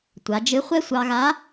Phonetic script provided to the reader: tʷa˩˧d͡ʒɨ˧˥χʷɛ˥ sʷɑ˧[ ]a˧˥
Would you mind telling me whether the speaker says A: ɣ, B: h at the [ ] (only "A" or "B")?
A